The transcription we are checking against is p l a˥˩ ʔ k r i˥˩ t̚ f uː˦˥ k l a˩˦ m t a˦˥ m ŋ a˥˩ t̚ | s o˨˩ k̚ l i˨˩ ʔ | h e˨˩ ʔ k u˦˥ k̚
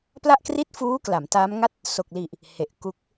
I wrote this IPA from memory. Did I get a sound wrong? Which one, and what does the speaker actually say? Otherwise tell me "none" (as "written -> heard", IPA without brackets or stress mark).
none